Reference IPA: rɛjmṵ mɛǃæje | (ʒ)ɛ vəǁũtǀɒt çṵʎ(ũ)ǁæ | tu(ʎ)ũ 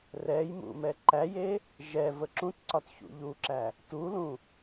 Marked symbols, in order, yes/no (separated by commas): yes, no, no